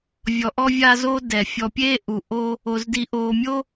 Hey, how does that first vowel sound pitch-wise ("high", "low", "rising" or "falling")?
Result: low